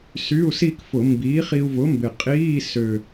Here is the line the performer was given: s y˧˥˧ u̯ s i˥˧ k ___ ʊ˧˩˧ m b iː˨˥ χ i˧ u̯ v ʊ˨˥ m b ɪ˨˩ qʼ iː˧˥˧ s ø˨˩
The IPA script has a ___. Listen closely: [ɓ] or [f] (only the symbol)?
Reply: f